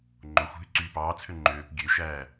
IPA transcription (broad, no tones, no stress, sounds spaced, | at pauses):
ŋ͡ǃ o xʷ ɦ y ǀ yː p ɑː t͡sʰ ø ŋ͡ǃ øː p ɡʲ ø ʃ æː